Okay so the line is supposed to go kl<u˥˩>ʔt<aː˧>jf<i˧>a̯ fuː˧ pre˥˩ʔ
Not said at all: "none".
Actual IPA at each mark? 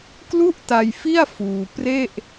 u˥˩, a˧, i˥˩

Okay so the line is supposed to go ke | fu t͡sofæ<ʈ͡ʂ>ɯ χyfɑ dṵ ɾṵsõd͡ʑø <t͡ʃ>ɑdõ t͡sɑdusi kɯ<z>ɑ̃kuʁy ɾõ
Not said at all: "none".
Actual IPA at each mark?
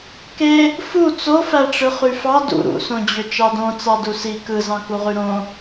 ʈ͡ʂ, t͡ʃ, z

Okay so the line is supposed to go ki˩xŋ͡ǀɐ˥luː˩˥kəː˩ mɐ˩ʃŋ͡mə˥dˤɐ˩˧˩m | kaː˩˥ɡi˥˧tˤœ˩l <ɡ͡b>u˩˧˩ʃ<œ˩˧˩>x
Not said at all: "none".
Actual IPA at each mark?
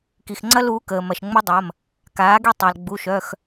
ɡ͡b, œ˩˧˩

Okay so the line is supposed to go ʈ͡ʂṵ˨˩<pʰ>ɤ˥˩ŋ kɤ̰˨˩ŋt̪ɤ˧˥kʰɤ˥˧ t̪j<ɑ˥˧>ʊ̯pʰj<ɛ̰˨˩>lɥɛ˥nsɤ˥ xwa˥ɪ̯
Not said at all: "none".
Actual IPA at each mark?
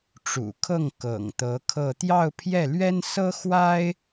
kʰ, ɑ˥˧, ɛ˥˩

